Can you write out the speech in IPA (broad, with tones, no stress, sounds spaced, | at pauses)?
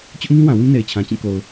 t͡ɕ ʊ˦ ʔ ŋ ĩ˦ w ã˨ w ĩ˦ n e˨ ɪ̯ t͡ɕʰ ã˨ t͡ɕ ĩ˦˨ k o˨ ʊ̯